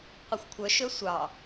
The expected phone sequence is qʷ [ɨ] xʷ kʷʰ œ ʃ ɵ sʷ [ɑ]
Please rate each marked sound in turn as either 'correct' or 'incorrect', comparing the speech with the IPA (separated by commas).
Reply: incorrect, correct